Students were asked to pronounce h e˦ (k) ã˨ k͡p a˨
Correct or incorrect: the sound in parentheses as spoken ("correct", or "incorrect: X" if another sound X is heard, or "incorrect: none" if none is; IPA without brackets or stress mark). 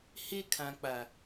incorrect: kʰ